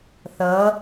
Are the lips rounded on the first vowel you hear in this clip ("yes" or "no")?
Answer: no